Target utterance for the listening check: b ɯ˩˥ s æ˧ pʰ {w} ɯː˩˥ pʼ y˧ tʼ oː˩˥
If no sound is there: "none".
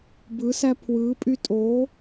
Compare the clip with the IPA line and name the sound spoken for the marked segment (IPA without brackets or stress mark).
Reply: w